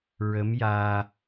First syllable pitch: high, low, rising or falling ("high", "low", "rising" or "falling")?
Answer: rising